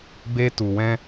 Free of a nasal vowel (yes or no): no